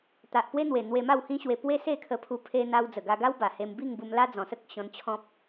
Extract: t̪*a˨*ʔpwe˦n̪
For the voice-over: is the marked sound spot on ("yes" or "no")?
yes